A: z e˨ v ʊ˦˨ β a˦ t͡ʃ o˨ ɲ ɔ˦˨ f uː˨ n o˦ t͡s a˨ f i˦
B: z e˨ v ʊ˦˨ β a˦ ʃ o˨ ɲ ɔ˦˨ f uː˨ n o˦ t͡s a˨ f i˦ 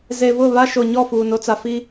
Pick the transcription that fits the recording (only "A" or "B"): B